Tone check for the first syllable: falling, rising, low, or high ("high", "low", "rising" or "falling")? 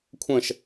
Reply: falling